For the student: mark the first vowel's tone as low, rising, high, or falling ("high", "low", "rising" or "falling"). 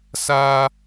high